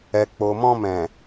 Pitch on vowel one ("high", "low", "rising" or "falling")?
low